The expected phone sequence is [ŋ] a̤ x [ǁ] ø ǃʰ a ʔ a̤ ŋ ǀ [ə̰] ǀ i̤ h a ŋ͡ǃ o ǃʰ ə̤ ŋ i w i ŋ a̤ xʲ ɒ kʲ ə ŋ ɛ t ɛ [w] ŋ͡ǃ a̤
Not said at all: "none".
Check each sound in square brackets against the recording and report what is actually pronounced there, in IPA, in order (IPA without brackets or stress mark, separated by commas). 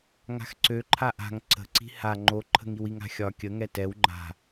ŋ, ǀ, ə̤, w